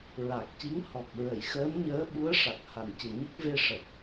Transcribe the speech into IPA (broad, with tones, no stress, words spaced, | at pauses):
ɹa˨˩k̚ci˧˥ŋ hɔ˨˩k̚ɹə˨˩˨j xəː˧˥nɲəː˧˥ɓu˧˥ə̯ʂa˨˩k̚ ha˨˩ncɨ˨˩ɲə˦˥k̚ ve˧ʂə˨˩k̚